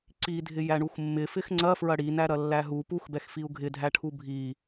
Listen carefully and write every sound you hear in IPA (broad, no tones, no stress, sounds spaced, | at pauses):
ǀ i dʱ ɪ j æ ɳ u x mː ɪ f ɪ x ŋ͡ǀ ɐ f ɹ ɐ ɽ i n æ ɾ ɐ lː æ ɦ u p u x b ɛ x f i u̯ ɡʱ ɪ dʱ æ ʈʰ u bʱ i